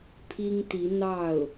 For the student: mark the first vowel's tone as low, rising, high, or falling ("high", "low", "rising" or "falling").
high